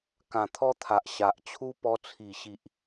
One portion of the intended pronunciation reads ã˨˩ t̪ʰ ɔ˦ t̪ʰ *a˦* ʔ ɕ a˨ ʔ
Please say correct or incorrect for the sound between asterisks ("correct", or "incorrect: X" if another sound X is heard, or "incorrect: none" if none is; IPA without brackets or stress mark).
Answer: incorrect: a˨